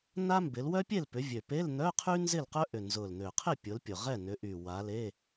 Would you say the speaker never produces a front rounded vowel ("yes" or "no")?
no